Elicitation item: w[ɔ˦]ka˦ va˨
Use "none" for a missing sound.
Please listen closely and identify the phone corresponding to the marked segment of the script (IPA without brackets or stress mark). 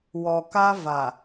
ɔ˨